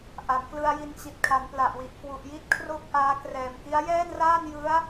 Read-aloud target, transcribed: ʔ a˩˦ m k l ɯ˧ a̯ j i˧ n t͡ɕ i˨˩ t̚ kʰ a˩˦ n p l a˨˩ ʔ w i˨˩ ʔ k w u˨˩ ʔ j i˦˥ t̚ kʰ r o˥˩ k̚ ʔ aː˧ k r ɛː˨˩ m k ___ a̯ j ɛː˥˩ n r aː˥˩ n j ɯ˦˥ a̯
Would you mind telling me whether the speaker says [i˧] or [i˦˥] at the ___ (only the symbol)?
i˦˥